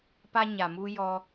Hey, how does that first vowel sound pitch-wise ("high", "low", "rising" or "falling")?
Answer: high